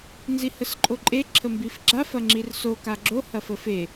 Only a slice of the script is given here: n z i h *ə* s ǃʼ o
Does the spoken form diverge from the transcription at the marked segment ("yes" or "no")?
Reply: no